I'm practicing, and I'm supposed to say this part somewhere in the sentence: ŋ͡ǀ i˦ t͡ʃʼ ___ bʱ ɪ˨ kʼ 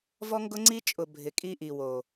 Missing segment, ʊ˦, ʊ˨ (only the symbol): ʊ˨